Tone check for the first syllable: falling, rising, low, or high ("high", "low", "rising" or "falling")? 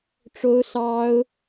high